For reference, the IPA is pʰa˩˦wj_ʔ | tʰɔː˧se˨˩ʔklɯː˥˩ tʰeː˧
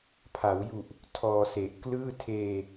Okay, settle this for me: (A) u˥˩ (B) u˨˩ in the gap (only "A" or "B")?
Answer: B